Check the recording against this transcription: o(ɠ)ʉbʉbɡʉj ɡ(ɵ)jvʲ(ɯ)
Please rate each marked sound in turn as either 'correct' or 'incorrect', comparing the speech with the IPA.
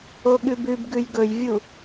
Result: correct, correct, incorrect

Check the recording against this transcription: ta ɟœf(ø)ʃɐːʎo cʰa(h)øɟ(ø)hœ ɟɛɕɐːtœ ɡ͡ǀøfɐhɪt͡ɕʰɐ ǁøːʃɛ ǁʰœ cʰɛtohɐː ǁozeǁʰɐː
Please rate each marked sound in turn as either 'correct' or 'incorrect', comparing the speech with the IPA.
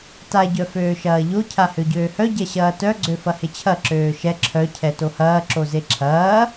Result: incorrect, correct, incorrect

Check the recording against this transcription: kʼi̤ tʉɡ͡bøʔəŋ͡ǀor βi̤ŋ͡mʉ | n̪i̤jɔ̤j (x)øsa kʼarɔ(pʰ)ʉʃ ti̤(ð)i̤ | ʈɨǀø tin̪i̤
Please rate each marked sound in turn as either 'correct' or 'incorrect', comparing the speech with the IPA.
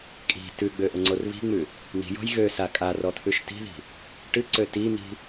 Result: incorrect, incorrect, correct

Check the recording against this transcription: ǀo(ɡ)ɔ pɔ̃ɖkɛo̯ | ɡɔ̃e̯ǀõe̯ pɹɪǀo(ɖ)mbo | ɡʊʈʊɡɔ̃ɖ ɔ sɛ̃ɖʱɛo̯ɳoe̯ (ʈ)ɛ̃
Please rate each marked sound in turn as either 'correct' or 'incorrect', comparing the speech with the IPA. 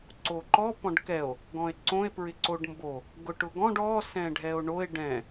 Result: incorrect, correct, incorrect

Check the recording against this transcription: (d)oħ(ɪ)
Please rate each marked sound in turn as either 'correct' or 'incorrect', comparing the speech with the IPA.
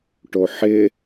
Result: incorrect, correct

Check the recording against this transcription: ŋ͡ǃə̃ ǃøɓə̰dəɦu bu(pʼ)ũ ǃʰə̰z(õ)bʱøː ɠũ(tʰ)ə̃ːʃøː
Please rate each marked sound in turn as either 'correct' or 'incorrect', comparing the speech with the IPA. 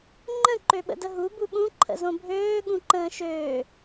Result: incorrect, correct, incorrect

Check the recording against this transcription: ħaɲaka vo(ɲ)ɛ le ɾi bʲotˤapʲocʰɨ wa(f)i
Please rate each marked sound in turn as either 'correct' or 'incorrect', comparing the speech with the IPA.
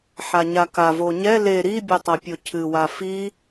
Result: correct, correct

